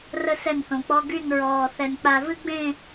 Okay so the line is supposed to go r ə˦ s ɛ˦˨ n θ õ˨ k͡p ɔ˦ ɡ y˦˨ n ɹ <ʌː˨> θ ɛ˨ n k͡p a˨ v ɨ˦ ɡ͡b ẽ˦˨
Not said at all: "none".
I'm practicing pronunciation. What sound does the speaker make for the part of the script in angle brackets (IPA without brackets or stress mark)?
ɔː˨